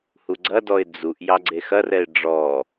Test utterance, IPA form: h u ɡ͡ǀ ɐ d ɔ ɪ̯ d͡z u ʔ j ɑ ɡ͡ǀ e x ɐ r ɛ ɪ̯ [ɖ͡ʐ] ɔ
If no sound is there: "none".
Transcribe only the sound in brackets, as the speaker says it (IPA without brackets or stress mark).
ɖ͡ʐ